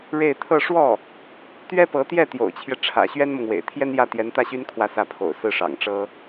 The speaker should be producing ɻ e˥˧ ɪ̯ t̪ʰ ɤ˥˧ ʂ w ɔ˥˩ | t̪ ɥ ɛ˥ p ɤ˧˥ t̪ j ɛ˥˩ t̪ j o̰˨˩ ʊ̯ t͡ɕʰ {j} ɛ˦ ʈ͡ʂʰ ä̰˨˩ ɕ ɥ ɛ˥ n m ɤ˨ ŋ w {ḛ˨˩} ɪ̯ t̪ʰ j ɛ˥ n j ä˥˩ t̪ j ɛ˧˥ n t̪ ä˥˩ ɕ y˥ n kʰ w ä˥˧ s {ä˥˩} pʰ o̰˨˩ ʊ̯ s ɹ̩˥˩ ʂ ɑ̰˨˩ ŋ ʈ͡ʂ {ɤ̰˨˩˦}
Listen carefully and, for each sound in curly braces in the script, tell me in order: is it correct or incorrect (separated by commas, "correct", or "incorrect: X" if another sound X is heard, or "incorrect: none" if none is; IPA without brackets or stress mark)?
correct, correct, correct, incorrect: ɤ˥